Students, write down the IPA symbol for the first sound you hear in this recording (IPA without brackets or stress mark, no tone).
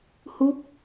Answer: h